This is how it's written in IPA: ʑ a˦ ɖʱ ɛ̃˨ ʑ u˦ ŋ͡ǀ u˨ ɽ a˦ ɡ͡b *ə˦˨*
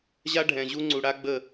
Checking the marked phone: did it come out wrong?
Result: no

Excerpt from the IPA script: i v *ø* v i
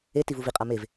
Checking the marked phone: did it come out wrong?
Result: yes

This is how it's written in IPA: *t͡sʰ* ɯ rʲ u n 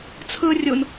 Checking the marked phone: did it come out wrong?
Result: no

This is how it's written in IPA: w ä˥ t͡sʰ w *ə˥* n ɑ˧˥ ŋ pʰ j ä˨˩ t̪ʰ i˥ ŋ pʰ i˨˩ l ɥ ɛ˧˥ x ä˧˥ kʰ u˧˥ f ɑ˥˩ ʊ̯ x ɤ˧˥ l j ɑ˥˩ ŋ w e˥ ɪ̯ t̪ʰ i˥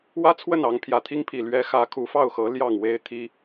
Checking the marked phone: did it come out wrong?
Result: yes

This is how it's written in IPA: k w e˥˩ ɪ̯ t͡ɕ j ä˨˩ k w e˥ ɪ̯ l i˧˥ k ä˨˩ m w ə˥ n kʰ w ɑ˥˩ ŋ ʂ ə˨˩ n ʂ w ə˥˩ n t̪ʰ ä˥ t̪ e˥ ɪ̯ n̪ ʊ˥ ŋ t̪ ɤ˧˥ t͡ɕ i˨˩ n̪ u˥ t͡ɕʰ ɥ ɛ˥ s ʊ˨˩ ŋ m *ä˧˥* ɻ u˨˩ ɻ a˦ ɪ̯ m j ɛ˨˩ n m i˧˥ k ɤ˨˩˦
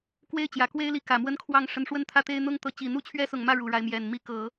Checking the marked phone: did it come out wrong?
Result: yes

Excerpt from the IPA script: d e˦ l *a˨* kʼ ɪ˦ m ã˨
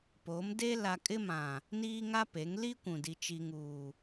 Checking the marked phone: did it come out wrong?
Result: no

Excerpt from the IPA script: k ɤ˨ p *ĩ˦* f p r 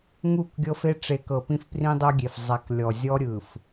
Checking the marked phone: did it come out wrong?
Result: no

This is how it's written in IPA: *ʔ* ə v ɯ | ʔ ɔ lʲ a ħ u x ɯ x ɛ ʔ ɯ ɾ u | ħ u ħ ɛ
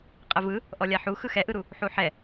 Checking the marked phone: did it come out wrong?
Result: yes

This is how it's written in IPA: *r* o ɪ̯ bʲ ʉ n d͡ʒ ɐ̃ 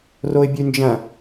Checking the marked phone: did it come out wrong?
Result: no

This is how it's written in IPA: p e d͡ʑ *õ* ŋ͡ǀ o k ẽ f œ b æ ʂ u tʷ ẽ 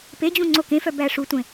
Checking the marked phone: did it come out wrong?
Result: yes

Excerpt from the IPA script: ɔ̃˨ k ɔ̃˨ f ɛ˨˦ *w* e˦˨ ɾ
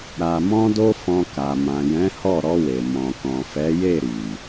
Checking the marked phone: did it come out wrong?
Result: yes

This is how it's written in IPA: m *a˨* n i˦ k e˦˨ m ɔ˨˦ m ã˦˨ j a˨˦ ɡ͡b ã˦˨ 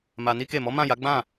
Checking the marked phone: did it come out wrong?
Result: yes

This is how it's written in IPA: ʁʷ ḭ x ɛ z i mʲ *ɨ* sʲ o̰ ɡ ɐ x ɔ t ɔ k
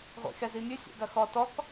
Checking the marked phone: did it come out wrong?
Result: no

